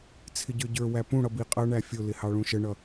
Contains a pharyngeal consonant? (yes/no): no